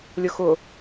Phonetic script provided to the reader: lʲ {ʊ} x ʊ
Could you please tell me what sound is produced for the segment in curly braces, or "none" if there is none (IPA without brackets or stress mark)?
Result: ʊ